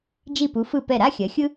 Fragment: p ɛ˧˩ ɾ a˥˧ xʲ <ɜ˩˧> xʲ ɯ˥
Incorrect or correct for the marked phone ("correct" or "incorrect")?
correct